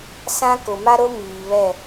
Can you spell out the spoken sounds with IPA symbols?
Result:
s ã˦ k ʊ˨ m a˦ ɾ o˦ m iː˨ β ɛ˦˨

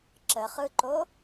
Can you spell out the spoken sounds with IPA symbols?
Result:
ǁ ə χ ɯ ǃ o

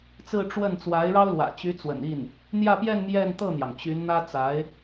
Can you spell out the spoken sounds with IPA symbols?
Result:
t͡s ɹ̩˥˧ ʈ͡ʂ w ə˥˩ n t͡s w a˧˥ ɪ̯ ɻ ɑ˥ ʊ̯ l w ä̰˨˩ t͡ɕ y˧˥ t͡s w ə̰˨˩ n i˥˩ n | n̪ j ä˥˧ p j ɛ˥˧ n m j ɛ˥˧ n t̪ ɤ˥˩ n̪ j ɑ˩ ŋ t͡ɕ y˧˥ n n̪ ä˥ t͡s a˧˥ ɪ̯

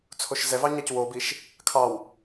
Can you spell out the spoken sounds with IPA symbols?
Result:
t͡sʰ o ʃ z ɛ v ɑ ɲ ɑ c w o b i ʃ | kʰ ɑ w

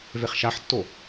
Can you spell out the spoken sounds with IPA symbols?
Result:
v e χ ʃ a ħ tː o

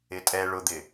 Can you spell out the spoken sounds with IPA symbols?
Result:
ɪ tʼ ɛ ɭ ʊ d̪ ɪ

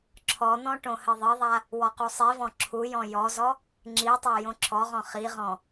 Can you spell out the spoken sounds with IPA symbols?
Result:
ǁʰ ɔ n̪ ɔ̃ ʈ õ h ɘ ðˤ ɘ ðˤ a | w ɔ q u sˤ i v ɔ̃ ǁʰ u j ɔ̃ j ɔ z ɔ | ŋ͡ǁ i tˤ a j õ ǁʰ ɔ ʁ ɔ̃ χ i ʁ ɔ̃

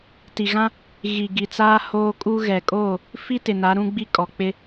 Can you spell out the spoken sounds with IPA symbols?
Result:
t i˨ ɣ ã˦ | ɣ i˨ ɡ i˨ t͡s aː˦ h oː˦ kʼ u˦ ɣ ɛ˨ kʼ oː˦˨ | f i˦ t ɪ˨ n a˨˦ ɾ ũ˦ ɡ͡b i˦ kʼ ɔ˨ k͡p ɪ˦

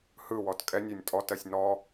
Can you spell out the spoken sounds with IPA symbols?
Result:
h ɯ w ɔ t kʼ ɛ nʲ ɜ nʲ tʼ ɔ t ɜ sʲ n ɔ

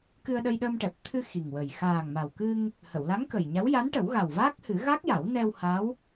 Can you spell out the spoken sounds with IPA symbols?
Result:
k ɨ˧ ə̯ ɗ ə˧ j ɗ əː˧ m ʈ ɛ˨˩ p̚ t̪ʰ ɨ˧ x i˨˩ ŋ w ə˨˩ j x aː˨˩ ŋ m a˨˩ w k ɨ˧ ŋ | h ə˨˩˨ w l a˧˥ ŋ k ə˨˩ j ɲ a˧˥ w j a˧˥ n ʈ ə˨˩˦ w ɣ a˨˩ w v aː˦˥ k̚ h ɨ˨˩˦ ɣ a˦˥ k̚ j a˨˩˦ w n ɛ˧ w h a˧˥ w

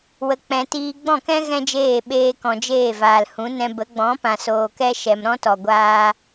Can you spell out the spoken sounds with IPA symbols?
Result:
w ə˧ k͡p ɛ̃˧ t iː˧ ɡ͡b ɔ̃˦˨ k ɛ̃˦ ɣ ɛ̃˦ d͡ʒ eː˦˨ ɓ eː˧ k ɔ̃˨ d͡ʒ eː˦˨ v aː˨ l h ũ˨˦ n ɛ̃˧ b ə˨˦ ɡ͡b ɔ̃˨˦ p ã˨ s oː˨ k ɛ˧ ʃ ɛ˨ m ɾ ɔ̃˦ t ɔ˨ ɡʷ aː˧

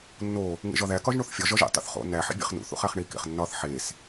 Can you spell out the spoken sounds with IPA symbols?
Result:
nː o | ŋ ḛ ʒ ɒ ð æ k ɒ ʒ ɳ o θ fʲ ɒ ʒ ɒ ʒ ḛ tˤ o̰ θ χ o̰ n æ ħ ḭ bʲ ḛ χ n ṵ θ ṵ χ æ χ ɳ i k ḛ χ nː ɒ θ ħ e s

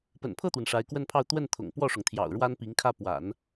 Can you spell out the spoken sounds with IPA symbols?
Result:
p ə̰˨˩ n pʰ ɤ˥˩ t̪ w ə˩ n ʂ a˧˥ ɪ̯ k w ə˥˧ n pʰ ɑ˥˧ ʊ̯ t̪ w ə˥˩ n t̪ʰ ʊ̰˨˩ ŋ p w ɔ˥˩ ʂ ʊ˩ ŋ t̪ʰ j ɑ̰˨˩ ʊ̯ ɻ w a˥ n p i˧˥ ŋ kʰ ä˥˩ p w a̰˨˩˦ n

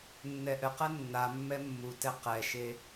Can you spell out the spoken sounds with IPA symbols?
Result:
nː ɛ ʔ ɘ q ɛ nː a mː ɛ mː u t ɛ q ɛ ʃ e

